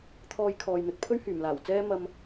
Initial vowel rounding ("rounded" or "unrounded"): rounded